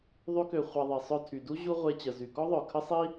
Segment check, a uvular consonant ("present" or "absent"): present